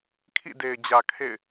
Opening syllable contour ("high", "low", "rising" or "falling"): falling